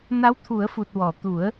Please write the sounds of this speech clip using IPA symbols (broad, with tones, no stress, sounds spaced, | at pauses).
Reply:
n a˧˥ w t̪ʰ u˨˩˦ ə̯ f u˨˩ t̚ w ɔ˨˩˨ t̪ u˨˩˦ ə̯